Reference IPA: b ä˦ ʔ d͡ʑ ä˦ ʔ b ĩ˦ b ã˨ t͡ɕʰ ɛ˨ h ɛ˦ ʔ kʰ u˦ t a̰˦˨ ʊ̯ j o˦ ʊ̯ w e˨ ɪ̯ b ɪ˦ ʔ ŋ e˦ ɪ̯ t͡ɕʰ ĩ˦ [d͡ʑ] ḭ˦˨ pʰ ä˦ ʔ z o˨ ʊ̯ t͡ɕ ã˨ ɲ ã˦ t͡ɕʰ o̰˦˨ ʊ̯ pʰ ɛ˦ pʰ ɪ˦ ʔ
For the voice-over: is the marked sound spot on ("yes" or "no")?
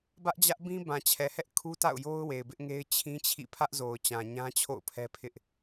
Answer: no